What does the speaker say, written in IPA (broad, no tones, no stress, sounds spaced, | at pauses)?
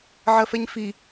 ʕ ɜ f ɛ ɲ f i